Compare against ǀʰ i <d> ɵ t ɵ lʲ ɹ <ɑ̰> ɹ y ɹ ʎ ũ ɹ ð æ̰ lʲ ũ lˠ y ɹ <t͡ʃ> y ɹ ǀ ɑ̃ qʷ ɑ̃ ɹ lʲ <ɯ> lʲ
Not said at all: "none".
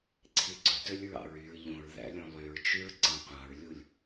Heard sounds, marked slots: ɡ͡ǀ, ɑ̰, t͡ʃ, u

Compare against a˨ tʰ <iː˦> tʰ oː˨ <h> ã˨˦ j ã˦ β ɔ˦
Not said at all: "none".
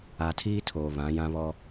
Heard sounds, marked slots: iː˦, β

